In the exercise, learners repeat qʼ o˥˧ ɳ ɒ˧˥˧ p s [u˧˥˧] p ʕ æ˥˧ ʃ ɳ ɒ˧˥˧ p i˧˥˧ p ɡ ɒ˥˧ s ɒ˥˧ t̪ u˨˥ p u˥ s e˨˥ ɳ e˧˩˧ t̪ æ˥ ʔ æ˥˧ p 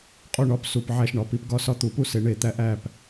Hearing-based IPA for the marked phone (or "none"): u˧˥˧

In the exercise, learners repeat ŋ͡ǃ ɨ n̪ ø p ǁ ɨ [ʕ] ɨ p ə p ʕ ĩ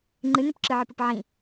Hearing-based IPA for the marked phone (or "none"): ʕ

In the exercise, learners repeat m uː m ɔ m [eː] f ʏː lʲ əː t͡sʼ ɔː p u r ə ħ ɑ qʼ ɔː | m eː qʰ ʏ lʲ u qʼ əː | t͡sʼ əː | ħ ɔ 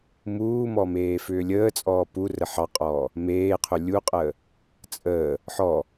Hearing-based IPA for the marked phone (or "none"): eː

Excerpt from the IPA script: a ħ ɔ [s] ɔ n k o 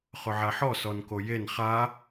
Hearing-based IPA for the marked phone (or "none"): s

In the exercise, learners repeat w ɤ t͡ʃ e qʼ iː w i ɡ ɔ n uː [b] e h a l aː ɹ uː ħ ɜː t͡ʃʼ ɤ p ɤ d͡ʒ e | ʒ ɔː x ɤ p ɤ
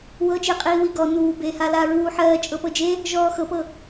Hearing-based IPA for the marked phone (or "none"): b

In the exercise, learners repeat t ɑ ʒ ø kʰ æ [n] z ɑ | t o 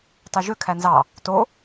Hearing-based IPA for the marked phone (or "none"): n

